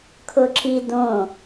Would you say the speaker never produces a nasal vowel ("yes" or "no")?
no